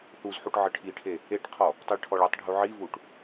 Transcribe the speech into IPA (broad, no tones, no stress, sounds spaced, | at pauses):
θ u z ħ u ʈ ʕ ə ʈʰ i ʈʰ e | e ʈ qʰ ɔ | tˤ i ɭ ʈʰ ɔ ɭ ɨ tˤ ɖʱ u ʕ i v u ʈ